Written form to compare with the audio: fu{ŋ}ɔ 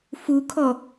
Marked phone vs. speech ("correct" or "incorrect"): incorrect